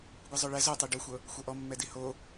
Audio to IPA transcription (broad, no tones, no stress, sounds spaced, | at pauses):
ɡʷ i zˤ o ɭ ɛ z o tˤ i ɖ o xʷ ɤ | xʷ ɤ ʔ ɔ mː ɛ d i h o